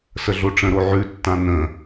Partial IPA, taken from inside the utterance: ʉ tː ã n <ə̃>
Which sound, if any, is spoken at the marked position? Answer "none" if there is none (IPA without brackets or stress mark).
ə̃